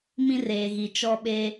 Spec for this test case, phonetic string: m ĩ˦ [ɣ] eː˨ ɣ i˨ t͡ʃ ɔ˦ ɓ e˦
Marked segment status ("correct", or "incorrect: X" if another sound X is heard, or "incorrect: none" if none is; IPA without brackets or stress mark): incorrect: r